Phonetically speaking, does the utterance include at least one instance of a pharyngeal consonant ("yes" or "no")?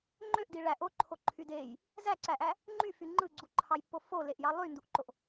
no